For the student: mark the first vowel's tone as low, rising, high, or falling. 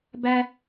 high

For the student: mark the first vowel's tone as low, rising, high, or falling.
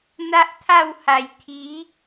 high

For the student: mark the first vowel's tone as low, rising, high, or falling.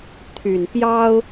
low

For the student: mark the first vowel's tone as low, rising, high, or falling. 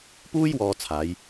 high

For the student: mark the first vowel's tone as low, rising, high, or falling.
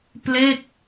falling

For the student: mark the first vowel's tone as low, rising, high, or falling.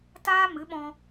high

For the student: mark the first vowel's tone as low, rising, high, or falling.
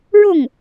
falling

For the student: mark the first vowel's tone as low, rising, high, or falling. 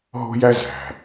high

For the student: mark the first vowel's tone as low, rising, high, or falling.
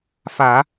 low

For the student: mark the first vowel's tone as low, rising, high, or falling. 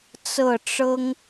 falling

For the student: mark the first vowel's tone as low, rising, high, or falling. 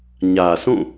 low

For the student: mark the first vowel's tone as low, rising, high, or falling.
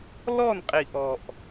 falling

